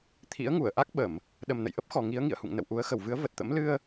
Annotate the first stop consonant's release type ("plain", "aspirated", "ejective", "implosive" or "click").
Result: aspirated